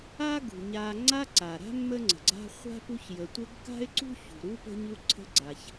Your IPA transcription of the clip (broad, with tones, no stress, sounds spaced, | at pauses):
a˥ ɡ ṳ˩ ɲ a˨ ŋ͡ǀ a˦ ǀ a˩ ɾ a̤˥ mː ə˦ ŋ͡ǀ ə̤˩ ɡ͡ǀ a̤˦ χʷ a̤˥ p u˦ ç j ə˨ tʷ ɘ˦ ɡ k a̤˥ ɪ̯ ǀ ṳ˥ ç ṳ˩ ɾ u˥ p ə̤˦ ɲ u˦ ǀʰ ə̤˦ ɡ͡ǀ a˨ ç